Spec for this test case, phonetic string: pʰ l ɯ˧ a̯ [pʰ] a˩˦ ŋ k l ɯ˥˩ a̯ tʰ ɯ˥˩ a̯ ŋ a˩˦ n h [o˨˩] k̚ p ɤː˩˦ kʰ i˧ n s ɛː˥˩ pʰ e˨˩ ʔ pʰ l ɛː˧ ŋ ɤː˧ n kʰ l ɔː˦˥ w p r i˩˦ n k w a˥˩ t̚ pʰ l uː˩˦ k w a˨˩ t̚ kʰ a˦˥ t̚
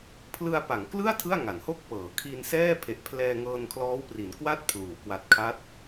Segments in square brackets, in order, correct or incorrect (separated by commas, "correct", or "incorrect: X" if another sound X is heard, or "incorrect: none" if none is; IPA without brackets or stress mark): incorrect: p, incorrect: o˥˩